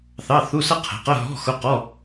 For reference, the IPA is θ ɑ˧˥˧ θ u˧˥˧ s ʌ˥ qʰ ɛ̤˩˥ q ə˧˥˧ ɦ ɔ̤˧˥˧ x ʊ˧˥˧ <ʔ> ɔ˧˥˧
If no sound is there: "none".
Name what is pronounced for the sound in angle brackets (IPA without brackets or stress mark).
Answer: q